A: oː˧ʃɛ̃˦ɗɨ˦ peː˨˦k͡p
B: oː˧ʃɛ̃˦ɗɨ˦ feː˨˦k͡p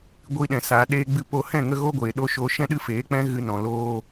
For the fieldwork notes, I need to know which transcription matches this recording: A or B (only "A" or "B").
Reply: B